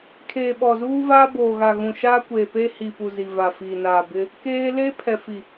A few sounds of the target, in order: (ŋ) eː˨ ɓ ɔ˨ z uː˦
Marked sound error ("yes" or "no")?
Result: yes